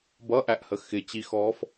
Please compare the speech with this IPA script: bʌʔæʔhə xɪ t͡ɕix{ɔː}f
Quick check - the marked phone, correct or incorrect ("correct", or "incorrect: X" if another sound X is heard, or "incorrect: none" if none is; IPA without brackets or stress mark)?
correct